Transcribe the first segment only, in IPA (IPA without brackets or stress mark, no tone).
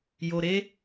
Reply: j